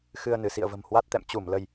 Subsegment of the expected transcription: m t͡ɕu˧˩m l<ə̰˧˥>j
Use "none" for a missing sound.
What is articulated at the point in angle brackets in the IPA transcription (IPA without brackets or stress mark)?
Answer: ə˧